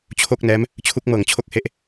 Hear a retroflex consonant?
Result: no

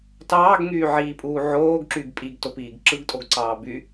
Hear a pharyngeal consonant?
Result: yes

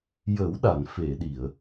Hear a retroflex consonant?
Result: no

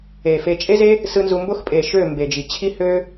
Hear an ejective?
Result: yes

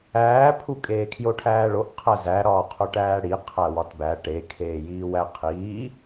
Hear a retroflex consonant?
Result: yes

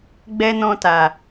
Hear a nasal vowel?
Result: yes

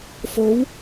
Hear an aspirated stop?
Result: no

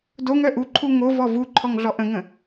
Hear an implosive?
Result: no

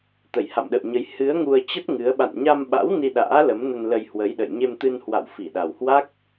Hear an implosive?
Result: yes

